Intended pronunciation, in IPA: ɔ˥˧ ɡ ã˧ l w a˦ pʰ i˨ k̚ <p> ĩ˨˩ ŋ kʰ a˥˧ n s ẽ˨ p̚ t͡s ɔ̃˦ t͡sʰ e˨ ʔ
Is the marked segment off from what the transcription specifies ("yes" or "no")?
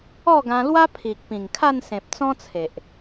no